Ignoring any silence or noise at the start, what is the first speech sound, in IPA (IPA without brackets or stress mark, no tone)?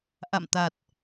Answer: ʔ